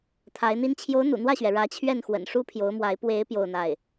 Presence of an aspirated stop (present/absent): present